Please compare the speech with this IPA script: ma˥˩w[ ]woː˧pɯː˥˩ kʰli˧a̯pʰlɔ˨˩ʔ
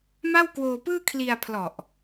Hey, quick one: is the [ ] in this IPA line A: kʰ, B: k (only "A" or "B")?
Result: B